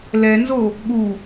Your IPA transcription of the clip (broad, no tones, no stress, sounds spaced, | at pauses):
l ɛ n z o | ɠ u